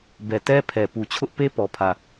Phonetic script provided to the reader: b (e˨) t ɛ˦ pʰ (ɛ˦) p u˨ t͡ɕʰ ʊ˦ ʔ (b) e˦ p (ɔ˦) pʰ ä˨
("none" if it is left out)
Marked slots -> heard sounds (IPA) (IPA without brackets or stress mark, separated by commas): ɛ˨, ɛ˨, p, ɔ˨